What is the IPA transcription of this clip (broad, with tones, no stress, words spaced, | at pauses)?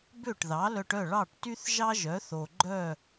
bø˥˩ʈðɑ˩˥lœ˧ʈœ˥˩ ɭɑ˥˩ʈty˥θ ʒɑ˥ʒœ˩˥ θo˩ɡ͡ǃœ˥˩